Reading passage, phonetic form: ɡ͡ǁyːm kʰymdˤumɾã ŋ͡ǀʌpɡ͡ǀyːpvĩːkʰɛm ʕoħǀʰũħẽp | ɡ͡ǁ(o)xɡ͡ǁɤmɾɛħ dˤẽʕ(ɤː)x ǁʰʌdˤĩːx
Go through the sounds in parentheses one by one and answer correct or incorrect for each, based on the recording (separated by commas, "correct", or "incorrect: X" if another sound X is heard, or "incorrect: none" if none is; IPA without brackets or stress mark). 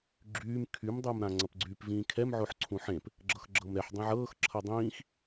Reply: incorrect: ɤ, correct